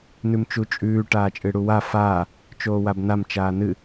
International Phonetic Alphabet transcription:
nʉmt͡ʃut͡ʃʼʉː ʈaːt͡ʃʼɨɽuwa faː | t͡ʃoːwabnam t͡ʃaːnɨ

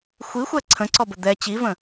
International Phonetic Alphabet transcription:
xʷixʷɛ ǀʰə̃ǀɔbə d̪ɛ t͡ɕivə̃

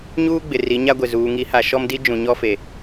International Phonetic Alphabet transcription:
ɲuː˦ɡ͡bɪ˨ ri˨˦ɲa˦ɡʷɪ˨ zuː˨ŋi˨˦ha˨ ʃɔ˦mdi˦ d͡ʒũ˨ɲɔ˦fe˨

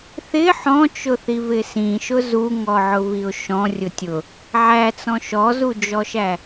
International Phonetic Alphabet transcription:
θɪ ħɔ̃t͡ʃʊθivɪ sĩʃʊ zuŋɔʕʊviʊ̯ ʃɔ̃rʲʊ tʲʊ | ʕæt͡sɔ̃ ʃɔzud͡ʒɔʃæ

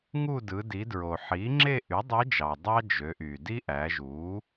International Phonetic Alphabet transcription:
ŋu˥˧dɯ˩˧ di˩˧dɹo˩ħi˩˥ ŋ͡ǁe˥˧ʔy˩˥dˤe˧˥d͡ʒɑ˩ dˤɑ˥d͡ʒø˩˧ʔy˩di˥ ʔæ˩˧ʒu˩˥

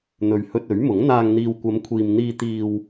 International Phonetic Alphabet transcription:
n̪ɵ˨ɥ hɵ˧t̚ɵ˨˥ɥmʊ˨˥ŋ n̪aː˨ŋn̪iː˨wkʷɐ˨˧mkʷʰiː˨m n̪iː˧t̪iː˧w

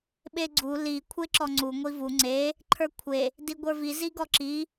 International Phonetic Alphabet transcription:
ɓeɡ͡ǀu li kʷʰeǁɔŋ͡ǀu ŋʷivu ŋ͡ǀe | ǃʰə˞kʷʰe | diɡʷə˞vi ziɡɔǁi

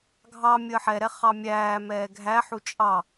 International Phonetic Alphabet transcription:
ɡʱɑ mʲəːħɛɾɛ χɑmʲæːmɛː ɡʱæħu t͡ʃʼɑ

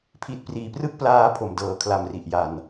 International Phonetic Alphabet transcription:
pʰi˨˩t̚priː˩˦prɯ˦˥k̚ plaː˧ pʰo˨˩mdɤː˨˩ kʰla˨˩m ri˨˩ʔja˨˩n

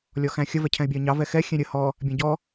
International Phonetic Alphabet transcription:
lʲɔxæ̃xʲə vɛcʰɛ̃ɪ̯bʲɑə̯ɲɑ vɛxɛ xʲɛ̃ɾʲə hɔ | bʲæ̃ɟɔ

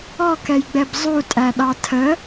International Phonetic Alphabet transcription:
ɔkɛjɡ͡bɛb zˤutʼæɗɑ tʰə

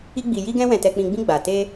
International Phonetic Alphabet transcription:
i˧ɡ͡bi˨ ji˧ɡɛ̃˧ wɛ̃˨tɛ˨k͡pĩ˨ɡ͡bĩ˧ ɡ͡ba˨ te˧

